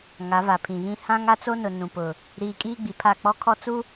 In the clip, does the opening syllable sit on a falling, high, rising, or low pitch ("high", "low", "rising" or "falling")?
rising